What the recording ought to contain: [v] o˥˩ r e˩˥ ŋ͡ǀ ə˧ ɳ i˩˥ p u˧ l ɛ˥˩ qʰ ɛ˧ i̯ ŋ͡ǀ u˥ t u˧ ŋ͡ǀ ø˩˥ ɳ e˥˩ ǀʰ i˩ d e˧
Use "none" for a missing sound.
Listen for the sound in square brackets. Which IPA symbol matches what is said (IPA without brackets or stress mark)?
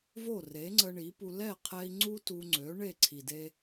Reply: v